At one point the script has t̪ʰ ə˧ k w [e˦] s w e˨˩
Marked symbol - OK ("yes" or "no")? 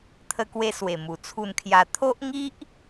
no